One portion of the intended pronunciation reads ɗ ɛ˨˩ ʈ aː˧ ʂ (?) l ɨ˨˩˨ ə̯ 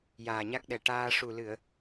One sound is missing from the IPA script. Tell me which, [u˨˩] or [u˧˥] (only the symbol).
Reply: u˨˩